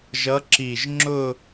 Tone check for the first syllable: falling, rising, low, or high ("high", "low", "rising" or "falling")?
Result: rising